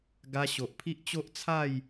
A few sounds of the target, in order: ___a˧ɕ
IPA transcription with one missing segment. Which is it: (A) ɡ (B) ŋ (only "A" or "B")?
A